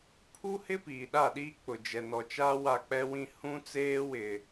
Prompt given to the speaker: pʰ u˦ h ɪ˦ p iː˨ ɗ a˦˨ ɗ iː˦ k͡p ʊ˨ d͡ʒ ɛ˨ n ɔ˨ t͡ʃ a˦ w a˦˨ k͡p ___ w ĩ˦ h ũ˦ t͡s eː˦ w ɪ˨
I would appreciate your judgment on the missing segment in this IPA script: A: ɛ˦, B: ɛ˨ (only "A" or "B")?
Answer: A